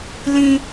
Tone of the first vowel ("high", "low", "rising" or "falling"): high